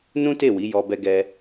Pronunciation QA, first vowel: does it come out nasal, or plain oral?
nasal